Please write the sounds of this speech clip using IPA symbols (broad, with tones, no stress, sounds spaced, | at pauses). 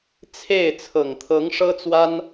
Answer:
t͡sʰ e˥˩ ɪ̯ t͡sʰ ɤ˨˩ ŋ t̪ʰ ɤ˧˥ ŋ ʂ ɤ˥ t͡s w a˥ n